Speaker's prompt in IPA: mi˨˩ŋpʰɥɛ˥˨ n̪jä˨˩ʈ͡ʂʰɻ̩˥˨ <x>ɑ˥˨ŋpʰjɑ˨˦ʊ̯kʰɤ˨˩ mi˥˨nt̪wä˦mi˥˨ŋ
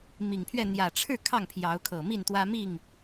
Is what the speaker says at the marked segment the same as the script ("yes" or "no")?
no